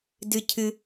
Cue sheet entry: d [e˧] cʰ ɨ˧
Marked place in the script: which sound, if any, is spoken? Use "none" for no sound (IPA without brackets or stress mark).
ɨ˧